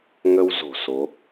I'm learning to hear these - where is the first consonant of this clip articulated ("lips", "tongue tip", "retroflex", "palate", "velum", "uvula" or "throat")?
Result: velum